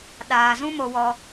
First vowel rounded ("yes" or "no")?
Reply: no